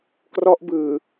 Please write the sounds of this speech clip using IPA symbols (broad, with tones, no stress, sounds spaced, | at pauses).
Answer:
k r ɔ˦˥ ʔ b ɯː˨˩